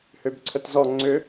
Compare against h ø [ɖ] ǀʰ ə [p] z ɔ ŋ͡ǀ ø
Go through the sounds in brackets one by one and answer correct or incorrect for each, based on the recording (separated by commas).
incorrect, incorrect